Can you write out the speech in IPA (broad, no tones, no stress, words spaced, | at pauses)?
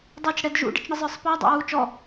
dˤut͡ʃ ɽɛdʒṵ ɖə̰t͡ʃɳəzˤə˞sˤpʌː dˤæ̰wuːt͡ʃɔ